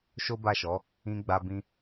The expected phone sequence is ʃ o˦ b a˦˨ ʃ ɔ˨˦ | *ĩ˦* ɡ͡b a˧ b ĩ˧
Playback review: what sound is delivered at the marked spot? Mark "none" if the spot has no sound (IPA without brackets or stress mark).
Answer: ĩ˧